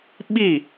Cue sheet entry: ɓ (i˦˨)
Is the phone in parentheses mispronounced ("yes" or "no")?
no